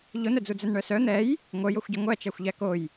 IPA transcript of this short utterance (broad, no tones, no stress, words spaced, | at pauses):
ʎonœd͡zu d͡zœnɳœsœ n̪ɛj | ŋʷœjoxʷɟɐ ŋʷæt͡ʃæxʷʎæ koj